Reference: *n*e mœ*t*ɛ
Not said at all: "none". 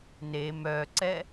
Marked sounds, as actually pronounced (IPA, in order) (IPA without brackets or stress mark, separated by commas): n, ǀ